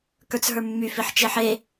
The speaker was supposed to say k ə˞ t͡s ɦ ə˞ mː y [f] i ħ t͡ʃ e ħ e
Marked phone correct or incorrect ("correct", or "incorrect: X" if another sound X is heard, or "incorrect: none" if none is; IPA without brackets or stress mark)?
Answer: correct